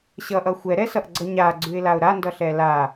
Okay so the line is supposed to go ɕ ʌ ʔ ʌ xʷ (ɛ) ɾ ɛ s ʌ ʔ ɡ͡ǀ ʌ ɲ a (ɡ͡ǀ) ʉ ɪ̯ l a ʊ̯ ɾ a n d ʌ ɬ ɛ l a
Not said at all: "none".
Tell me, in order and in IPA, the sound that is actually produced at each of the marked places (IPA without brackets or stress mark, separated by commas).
ɛ, ɡ͡ǀ